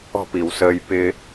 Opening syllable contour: falling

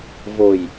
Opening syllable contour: low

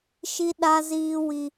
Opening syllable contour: high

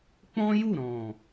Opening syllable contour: high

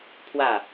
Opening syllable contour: falling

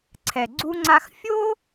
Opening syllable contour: low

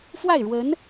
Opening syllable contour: falling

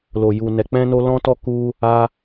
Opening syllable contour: low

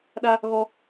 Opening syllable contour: high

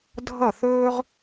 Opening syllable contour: falling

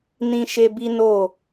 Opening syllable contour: high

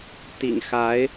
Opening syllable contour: low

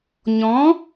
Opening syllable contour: rising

